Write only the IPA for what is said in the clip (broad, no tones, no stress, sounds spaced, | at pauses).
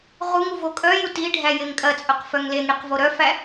ʁ u ŋ u v o kʼ œ j u t i ɖʱ æ j e ŋ kʼ ɐ t͡sʼ œ q f œ ŋ l e ŋ ɽ i q v o ɾ œ f æ